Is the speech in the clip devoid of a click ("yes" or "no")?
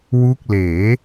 yes